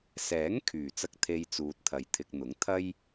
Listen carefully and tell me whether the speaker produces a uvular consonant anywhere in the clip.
no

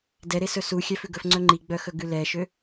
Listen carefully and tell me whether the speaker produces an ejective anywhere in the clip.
no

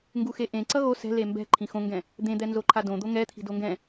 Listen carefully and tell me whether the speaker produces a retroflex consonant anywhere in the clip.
no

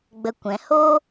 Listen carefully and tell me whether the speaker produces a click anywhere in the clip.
no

